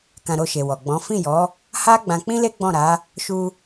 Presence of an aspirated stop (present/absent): absent